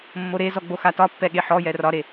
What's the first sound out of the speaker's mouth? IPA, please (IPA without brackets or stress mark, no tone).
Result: mː